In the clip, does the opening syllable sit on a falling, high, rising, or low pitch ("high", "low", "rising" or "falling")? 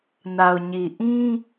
low